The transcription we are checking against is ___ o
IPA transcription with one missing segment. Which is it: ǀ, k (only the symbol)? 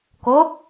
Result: k